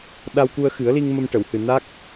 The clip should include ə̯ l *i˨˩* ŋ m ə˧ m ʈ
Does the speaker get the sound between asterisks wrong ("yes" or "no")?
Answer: yes